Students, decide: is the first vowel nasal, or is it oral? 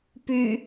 oral